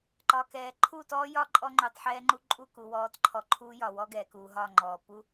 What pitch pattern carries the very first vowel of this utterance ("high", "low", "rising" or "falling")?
low